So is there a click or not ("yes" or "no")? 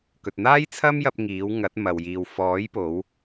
no